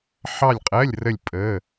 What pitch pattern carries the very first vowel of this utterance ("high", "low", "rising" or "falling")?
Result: falling